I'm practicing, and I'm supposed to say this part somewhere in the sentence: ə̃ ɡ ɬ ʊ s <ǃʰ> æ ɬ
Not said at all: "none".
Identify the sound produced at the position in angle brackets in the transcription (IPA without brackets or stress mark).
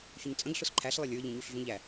ǃʰ